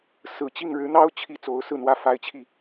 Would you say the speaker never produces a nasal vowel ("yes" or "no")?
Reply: yes